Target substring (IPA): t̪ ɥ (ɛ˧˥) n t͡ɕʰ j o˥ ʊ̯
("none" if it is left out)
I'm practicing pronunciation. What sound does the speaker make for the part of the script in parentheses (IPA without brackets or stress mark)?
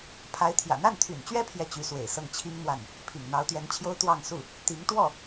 ɛ˧˥